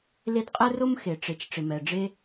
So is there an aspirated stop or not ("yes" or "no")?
no